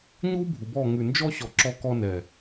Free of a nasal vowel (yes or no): yes